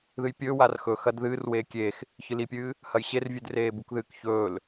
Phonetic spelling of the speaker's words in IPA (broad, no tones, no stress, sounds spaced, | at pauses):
ð ɨ j pʲ ɵː w a r x ɵ x ɐ d ð ɨː r w eː kʲ eː x | ç ɨ l i pʲ ɨː | h ɐ j ɕ e r vʲ ʉ d r eː b u k ð ɨː k ç ɵː l